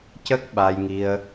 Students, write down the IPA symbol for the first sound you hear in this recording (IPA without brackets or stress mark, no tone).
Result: c